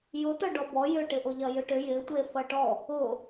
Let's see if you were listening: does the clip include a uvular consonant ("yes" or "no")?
no